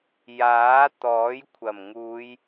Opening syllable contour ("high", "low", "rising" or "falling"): rising